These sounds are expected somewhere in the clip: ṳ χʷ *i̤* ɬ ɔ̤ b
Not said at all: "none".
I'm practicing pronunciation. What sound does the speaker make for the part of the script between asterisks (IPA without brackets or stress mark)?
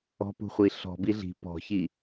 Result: i